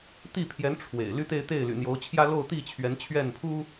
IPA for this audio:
t̪i˥˩pʰjɛ˧˥n ʈ͡ʂʰwḛ˨˩ɪ̯ ly˥t̪e˥˧ɪ̯t̪e˥˩ɪ̯ly̰˨˩ n̪jo˧˥ʊ̯ t͡ɕʰjä˥lo˥˧ʊ̯t̪i˥˩ t͡ɕʰɥɛ˧˥nt͡ɕʰɥɛ˥˩npʰu˥

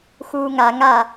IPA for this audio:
xuːŋa ŋa

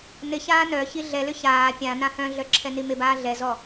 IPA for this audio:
nɪçaː nœ çiɮɛlʏ çaː pʲã nãhœ̃ɮœ ǁʰɛnimɪbaː ɮɛzɔ

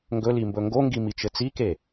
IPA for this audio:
ŋɡɵlimbɵ ŋɡoŋɡimit͡ʃɘ t͡sike

